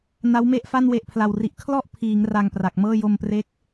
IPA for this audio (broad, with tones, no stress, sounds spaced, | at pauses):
n a˦˥ w m e˥˩ ʔ f a˥˩ n w e˨˩ ʔ pʰ l a˨˩ w r i˨˩ ʔ kʰ l ɔ˥˩ ʔ pʰ iː˩˦ ŋ r a˧ ŋ p r a˨˩ k̚ m ɤː˥˩ j o˧ m p r e˦˥ k̚